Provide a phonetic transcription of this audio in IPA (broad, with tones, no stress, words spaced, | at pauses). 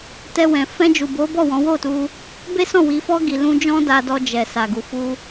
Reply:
tɛ˧wɛ̃˨ fɛ̃˧d͡ʒu˨bo˨˦ bɔ˦˨wɔ̃˨˦wo˦˨tu˧ | be˦sɔ̃˦˨wi˨˦fɔ˦ ɡi˧lũ˦ d͡ʒɔ̃˦da˧dɔ˧ d͡ʒɛ˨ sa˨ɡu˨fu˧